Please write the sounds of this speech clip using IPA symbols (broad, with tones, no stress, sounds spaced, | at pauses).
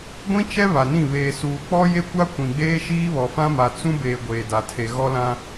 ɡʷ ĩ˦ t͡ʃ ɛ˦ β a˨ n ĩ˦˨ β eː˨ s uː˨ k͡p ɔ˦ j e˦ kʷ a˦ kʷ ĩ˨ ɡ͡b eː˦ ʃ iː˦ β ɔ˨ f ã˦ m a˨ t͡s ũ˦ b eː˨ ɡʷ eː˨ d a˨ tʰ e˨ ɣ ɔ˦ l ã˦